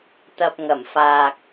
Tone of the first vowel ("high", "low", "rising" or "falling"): low